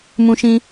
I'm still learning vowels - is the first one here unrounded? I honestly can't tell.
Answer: no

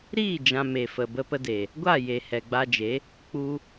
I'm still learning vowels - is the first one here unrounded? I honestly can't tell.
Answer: yes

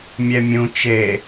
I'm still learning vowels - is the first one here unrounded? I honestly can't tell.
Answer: yes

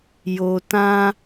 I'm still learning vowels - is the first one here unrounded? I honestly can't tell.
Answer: no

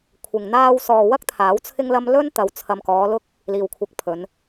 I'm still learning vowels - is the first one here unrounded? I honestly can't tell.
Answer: yes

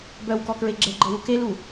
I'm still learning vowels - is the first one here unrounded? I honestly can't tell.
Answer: no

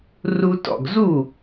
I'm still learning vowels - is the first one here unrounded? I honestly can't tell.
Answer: no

